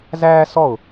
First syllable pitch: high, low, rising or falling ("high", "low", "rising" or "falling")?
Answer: high